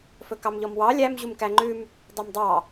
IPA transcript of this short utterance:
fɵkɑmʎɔmwɑ lʲæm ʑumkæŋ͡ǃʉm | dˤœmdˤɑ

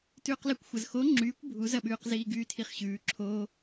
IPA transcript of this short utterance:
tʉːqlɘkʷxʷɐz xo ŋ͡ǁyːkʷ bʱuzɐɓʉːqziː ɡyːtʰiχɕʉː ǁʰoː

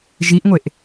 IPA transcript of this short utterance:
ʒiʔŋʷeʔ

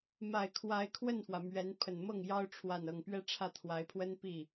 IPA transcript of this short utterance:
ma˨˩ɪ̯ kʰwa˧˥ɪ̯kʰwə˥˩nfwä˩ mɥɛ˧˥n pʰə˨˩nmɤ˥˩ŋ jɑ˥ʊ̯ ʈ͡ʂʰwa˥˧nɤ˥˧ŋ pɥɛ˥˧ʈ͡ʂʰä˥˩t̪ʰwa˧˥ɪ̯pʰwə˥n pi˥˩

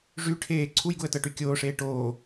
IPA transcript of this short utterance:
ʐy ʈʰeː ǀʰujɡuə̯ tɤʈykʲoːʂeː ʈoː

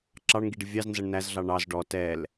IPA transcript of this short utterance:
ǁɑɳŋɡiɖɪ vʲɑznzʌɳ næzɮɑ ɳɑz ɖɔ tɛl

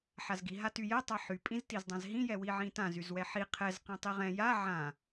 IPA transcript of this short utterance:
ħazɡi ɦatyjɛ tˤaħy pʼĩztizdˤãzɦĩ jɛwiʕĩtã zyzwɛħi qʰɛz qɛ̃tˤiʁɛ̃ ja ʕã

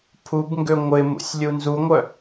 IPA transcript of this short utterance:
pʰubŋɡø ŋʷɪ mṵsʲlʲunzuŋʷœ

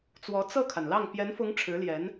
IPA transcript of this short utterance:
t͡swɔ˧˥ t͡sɤ˥˩kʰa˩nlɑ˥˩ŋ pjɛ˧˥nfʊ˧˥ŋ ʈ͡ʂʰɻ̩˧˥ljɛ˧˥n

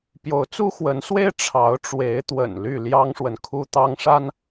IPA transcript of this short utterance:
pjo˨˦ʊ̯t͡su˦xwə˨˦nswe˦ɪ̯ ʈ͡ʂʰɑ˨˦ʊ̯ʈ͡ʂwe˨˦ɪ̯t̪wə̰˨˩n ly˥˨ljɑ˦ŋʂwə˨n kʰu˦t̪ɑ˦ŋʂa˦n

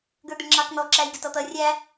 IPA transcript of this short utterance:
ɡə˞d̪ɪɳŋ͡ǁɑkn̪ɔ ǁæjɡɪtɔt̪ʌ rʲæ

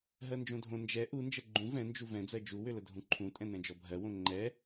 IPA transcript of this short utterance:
ɦɜnd͡ʒõdʱõ nd͡ʒɛ ʔu nd͡ʒɜɡ͡ǃũ vɛ̃nd͡ʒu vɛ̃d͡zɜ d͡ʒuwʏlə dʱũǃʰũtʼɛ̃ nɛ̃d͡ʒɔbʱɜwõ ŋ͡ǃɛ

